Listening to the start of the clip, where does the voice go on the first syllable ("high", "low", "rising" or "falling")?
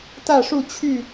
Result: falling